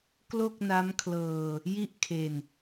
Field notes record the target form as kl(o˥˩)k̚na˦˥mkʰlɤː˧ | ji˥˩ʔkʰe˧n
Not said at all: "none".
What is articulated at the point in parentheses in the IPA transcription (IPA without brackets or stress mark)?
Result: o˥˩